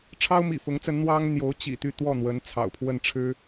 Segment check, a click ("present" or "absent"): absent